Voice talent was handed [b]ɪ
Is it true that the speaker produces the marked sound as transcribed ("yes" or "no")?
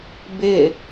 yes